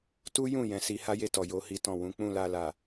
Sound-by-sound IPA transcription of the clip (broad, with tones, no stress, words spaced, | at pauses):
tu˦jũ˦˨ jɛ̃˨˦si˧ ha˦je˧ tɔ˨jo˧hi˦tɔ̃˦˨ wũ˨˦ k͡pũ˦˨la˧la˨